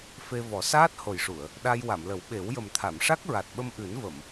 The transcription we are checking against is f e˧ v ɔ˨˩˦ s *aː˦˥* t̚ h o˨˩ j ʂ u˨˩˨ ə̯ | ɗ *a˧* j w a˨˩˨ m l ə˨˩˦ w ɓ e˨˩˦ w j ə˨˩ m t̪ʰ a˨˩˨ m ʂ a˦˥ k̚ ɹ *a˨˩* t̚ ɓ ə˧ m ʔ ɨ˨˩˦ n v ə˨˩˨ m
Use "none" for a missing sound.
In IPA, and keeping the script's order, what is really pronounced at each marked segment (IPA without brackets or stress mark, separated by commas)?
aː˦˥, a˧, a˨˩